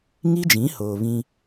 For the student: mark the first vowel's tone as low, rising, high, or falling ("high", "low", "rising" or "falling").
high